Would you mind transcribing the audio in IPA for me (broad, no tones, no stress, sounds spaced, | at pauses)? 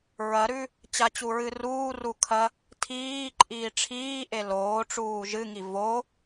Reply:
ɹ ɐ ɾ ʉ | t͡ɕ a t͡ɕ u ɹ ɨ r uː r u kʰ ɐ | tʰ iː ǃʼ iː ʈ͡ʂʰ iː ʔ e l oː ʈ͡ʂ uː ʒ ɨ ŋ i v o